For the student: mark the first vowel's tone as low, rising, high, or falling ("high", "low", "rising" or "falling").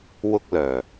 high